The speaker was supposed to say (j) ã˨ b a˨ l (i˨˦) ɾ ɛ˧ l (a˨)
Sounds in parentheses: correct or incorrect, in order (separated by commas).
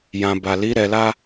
correct, correct, incorrect